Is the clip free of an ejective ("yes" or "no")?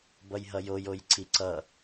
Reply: yes